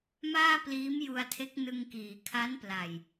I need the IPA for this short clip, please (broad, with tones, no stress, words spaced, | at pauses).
maː˥˩pliː˦˥mju˧a̯tʰe˦˥k̚ nɯ˧ŋkiː˩˦ kʰa˦˥npla˨˩j